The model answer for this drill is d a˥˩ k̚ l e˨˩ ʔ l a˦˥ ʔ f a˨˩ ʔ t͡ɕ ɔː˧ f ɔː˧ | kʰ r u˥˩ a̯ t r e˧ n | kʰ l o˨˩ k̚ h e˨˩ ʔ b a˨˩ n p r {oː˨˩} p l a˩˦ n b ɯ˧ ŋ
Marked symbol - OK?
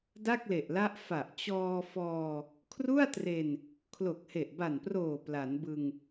yes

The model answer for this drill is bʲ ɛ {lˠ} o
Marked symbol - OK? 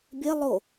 yes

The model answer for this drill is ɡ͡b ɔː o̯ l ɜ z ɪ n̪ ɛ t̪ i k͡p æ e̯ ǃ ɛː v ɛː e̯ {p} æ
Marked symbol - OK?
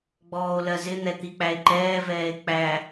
no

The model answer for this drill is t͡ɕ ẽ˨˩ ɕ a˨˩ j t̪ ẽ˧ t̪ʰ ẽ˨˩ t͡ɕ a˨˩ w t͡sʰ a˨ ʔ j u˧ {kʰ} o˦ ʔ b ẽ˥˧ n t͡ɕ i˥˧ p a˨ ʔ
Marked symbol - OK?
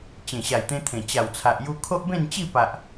yes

